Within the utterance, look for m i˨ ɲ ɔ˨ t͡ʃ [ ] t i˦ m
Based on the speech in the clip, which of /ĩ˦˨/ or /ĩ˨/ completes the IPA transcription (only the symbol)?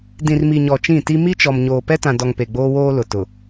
ĩ˦˨